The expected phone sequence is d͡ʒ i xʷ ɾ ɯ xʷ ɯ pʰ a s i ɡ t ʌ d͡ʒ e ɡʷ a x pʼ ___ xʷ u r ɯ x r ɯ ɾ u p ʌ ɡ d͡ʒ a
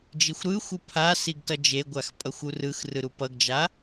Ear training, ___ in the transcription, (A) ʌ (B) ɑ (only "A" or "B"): A